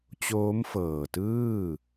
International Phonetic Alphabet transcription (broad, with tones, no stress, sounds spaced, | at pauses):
t͡ɕ oː˦˥ m f ɤː˨˩ t ɯː˥˩